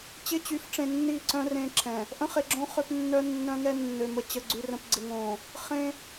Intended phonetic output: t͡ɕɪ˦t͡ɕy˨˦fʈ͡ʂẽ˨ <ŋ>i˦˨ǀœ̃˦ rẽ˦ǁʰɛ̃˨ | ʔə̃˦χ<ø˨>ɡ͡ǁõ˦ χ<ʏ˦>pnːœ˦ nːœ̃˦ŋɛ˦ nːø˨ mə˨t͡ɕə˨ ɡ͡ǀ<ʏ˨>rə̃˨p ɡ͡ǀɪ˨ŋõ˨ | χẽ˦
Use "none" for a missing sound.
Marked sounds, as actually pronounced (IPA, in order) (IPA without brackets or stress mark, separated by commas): nː, e˨, ʏ˦, y˨